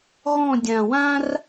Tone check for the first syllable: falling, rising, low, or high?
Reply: falling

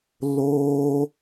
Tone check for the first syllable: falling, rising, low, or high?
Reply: high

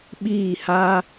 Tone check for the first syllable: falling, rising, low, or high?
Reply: falling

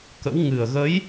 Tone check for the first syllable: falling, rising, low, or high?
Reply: rising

